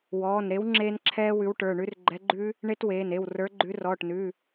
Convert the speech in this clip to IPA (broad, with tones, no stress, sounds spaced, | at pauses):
w ɔː˩˧˩ n ɾ e˨˥ w ŋ͡ǁ eː˦˥ n ǁʰ ɛː˦˥ w ʉ˨˥ w ʈ ə˞˩˧˩ ɳ ʉ˦˥ r ɡ͡ǃ ɛ˨˥ ɡ͡ǃ ʉ˦˥ | ɳ e˦˥ t w eː˩˧˩ n e˩˧˩ w r ə˞˨˥ ɡ͡ǃ ʉ˨˥ r ɔː˩˧˩ ʈ n ʉ˩˧˩